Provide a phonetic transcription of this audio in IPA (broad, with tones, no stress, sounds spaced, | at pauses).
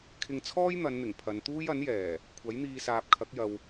kʰ ɪ˧ ŋ t͡sʰ ɔː˥ j n̪ ɐ˨˧ n n̪ ɪ˨˩ ŋ pʰ ɐ˨˧ n t̪ uː˥ j ɐ˨˥ n j ɛː˨˩ | kʷʰ ɐ˨˥ j n̪ iː˧ s aː˨ p̚ kʰ ɐ˨˥ k̚ j ɐ˨ w